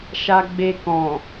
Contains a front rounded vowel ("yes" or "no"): no